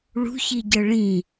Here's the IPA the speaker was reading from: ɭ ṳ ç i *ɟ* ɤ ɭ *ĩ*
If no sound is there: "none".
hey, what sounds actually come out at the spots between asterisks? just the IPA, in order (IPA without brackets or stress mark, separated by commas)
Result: ɟ, ĩ